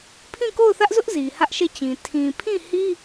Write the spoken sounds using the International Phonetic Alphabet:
pʰ ĩ˦˨ k o˦˨ ʊ̯ θ ä˦ ʔ z ʊ˦ ʔ z i˨ h ä˦ ʔ ʃ e˦˨ t͡ɕ ĩ˨ tʰ ĩ˨ pʰ ĩ˦˨ h i˦

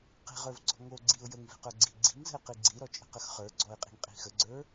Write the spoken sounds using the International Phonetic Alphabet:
q i̤ ʁ ə˞ v ɡ͡ǀ ɔ̤ ŋ o ɡ͡ǀ i ʊ̯ j ə ŋ v i̤ q ə˞ ɡ͡ǀ i ɡ͡ǀ i̤ ŋ z ə̤ ɪ̯ q i ɡ͡ǀ i ɾ ɔ t͡ʃʼ ə̤ q ə x χ ə˞ ɡ͡ǀ ɔ ɪ̯ qʼ i̤ ŋ qʼ i̤ x ə ɡ͡ǀ ə˞

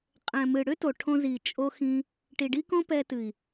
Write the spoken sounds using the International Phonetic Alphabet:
qʼ ɛ̃˨ m ɨ˨ ɽ ʏ˦ t o˨ ʈʰ õ˧ z i˨ t͡ʃʼ o˦ x ĩ˦ | ʈ i˨ ɖ i˦ k õ˦ p ɛ˧ t ɨ˨ i̯

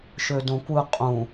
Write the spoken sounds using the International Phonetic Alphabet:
ʃ ø d õ kʷ ɯ qʼ ũ

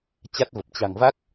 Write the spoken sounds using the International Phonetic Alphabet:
t͡ɕ a˦˥ t̚ v ə˨˩ p̚ t͡ɕ a̤˨˩ ŋ v a˦˥ k̚

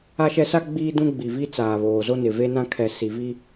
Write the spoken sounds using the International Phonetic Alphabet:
a˦ ʃ ɛ˦ s a˦ ɡ͡b iː˦ d ũ˦ ɡ͡b i˨ v i˦ t͡s aː˨ β oː˨ z o˦ n ɪ˨ v e˦ n ã˦ kʰ ɛ˨ s i˨ v i˦

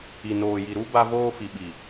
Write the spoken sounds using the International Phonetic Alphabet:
i˨ n oː˨ j i˨ ɾ u˦ b a˦ v oː˦ f i˨ ɓ i˨

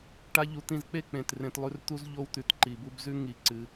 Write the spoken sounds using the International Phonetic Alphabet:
ʈ a˦ ʎ u˧ t̪ ĩ˧ z k͡p e˦ k͡p ẽ˨ t r ẽ˧ t lˠ ʉ˧ r t̪ u˦ z ʎ o˦ w t̪ ʉ˨ t ǃ i˨ b u˧ b z ʉ˦ ŋ i˧ ǀ ɨ˧

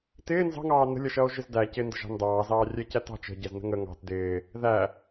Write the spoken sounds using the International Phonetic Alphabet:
t ɪː n z ɑ̤ ŋ ɑː n ə̤ lʲ ʌ ʃ ʌː o̯ ʒ ɪ z d æ c ɪ n d ə̤ ʒ ɑ̤ n d ɑː z ɑː rʲ ɛ c æ t ɑ̤ t͡ʃ ə̤ ɟ ɛ z n ə̤ ŋ ə ŋ ɑ̤ t d ɪː | ð æ

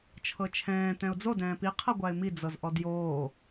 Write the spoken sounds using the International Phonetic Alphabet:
t͡ʃʰ ɤ t͡ʃʰ ɛ̃ː t ɛ̃ ʊ̯ d͡z o d ɛ̃ː p i qʰ ɤ ɡʷ a ɪ̯ m i d͡z ɤ z ʔ ɔ d j oː

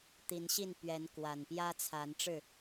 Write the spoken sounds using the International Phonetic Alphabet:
t̪ i˨˦ n ɕ i˥˨ n p ɥ ɛ˨˦ n k w a˨˩ n p j ä˦ t͡sʰ a˨˦ n ʈ͡ʂ ɻ̩˥˨

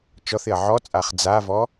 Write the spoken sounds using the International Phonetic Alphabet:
t͡ʃ ɔ θ ɪ ɐ̯ ʕ ɔ t͡sʼ a χ d͡z a v ɔ

